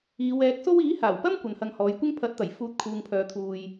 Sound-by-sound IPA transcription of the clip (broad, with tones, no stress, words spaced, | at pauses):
iː˨˧wɛː˨˥k̚so˥w iː˨˥haː˨˩wpɐ˥m kʷɐ˨nhɐ˧ŋhɔː˨˧jkʷɪ˥ŋ pʰɐ˨˥t̚t̪ɐ˨˩j fuː˧t̚ kʰuː˧ŋpʰœː˧t̪ʰuː˧j